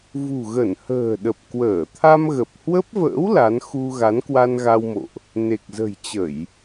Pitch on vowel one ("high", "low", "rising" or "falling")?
low